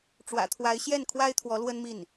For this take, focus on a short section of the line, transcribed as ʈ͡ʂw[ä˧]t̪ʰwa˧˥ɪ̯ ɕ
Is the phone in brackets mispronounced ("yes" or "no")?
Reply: yes